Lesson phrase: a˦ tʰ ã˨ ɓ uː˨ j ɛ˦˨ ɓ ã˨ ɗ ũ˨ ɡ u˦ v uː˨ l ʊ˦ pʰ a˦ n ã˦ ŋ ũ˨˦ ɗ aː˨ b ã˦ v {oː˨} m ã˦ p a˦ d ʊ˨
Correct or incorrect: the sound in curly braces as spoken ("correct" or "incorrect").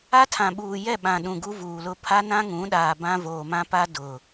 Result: correct